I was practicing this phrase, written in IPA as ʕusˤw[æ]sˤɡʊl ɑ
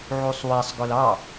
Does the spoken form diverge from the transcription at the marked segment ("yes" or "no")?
no